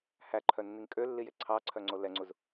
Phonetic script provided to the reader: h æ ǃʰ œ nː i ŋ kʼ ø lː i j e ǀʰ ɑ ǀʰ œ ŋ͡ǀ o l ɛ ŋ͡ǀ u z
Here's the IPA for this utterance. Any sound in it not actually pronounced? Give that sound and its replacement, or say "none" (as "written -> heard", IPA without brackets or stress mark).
none